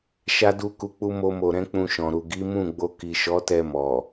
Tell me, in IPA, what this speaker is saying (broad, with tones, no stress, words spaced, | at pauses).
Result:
ʃa˦du˦ku˧ k͡pu˦mo˦mo˧ ɾɛ̃˦k͡pũ˧ʃɔ̃˨ ɾu˨ɡi˨˦mũ˦˨ɡ͡bo˧ ki˨ʃɔ˨˦tɛ˧ mɔ˨